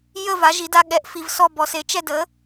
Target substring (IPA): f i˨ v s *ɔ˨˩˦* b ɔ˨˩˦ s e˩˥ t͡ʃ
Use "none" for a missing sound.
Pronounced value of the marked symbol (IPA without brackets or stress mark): ɔ˥˨